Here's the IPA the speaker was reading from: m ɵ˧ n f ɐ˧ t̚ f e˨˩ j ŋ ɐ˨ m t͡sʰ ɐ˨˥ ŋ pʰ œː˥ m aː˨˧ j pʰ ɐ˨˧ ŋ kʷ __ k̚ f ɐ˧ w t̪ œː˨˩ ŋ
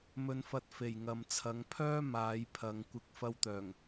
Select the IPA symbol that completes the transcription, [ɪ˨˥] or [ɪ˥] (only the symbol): ɪ˨˥